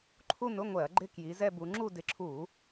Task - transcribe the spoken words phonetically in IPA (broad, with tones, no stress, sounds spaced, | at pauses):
ǃʰ u˥˧ n ʊ˧˥˧ ŋʷ ɛ˧˩˧ ɐ̯ ɡ͡ǃ ɪ˥˧ k j i˨˦ z ɛ˥˧ b u˨˦ ŋ͡ǁ u˥˧ d ɪ˨˦ ǁʰ u˧˩˧